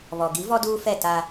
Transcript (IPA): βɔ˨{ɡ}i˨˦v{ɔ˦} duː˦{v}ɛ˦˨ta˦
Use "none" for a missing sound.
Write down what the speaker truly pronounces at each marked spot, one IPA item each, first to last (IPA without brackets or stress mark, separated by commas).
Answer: ɡ, ɔ˦, f